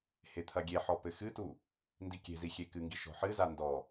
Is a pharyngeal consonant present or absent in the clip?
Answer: present